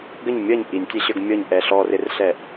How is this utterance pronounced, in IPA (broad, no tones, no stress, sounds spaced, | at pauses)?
ɡ ə ɲ mʲ ʌ ɲ ʔ i nʲ tʲ ɛ ɕ ə˞ ɡ mʲ ɔ ɲ ʔ ɛ ɬ ɔ r ɪ r ɬ ɛ ʔ